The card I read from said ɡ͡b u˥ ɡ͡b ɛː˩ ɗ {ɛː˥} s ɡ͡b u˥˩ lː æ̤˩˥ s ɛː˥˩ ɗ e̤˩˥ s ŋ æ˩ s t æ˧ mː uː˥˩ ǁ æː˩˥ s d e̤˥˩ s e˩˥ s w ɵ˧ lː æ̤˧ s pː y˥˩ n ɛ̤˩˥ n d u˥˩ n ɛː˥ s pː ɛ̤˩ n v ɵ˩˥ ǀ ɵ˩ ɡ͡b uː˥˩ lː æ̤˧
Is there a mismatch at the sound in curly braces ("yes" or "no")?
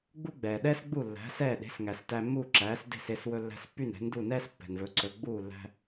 no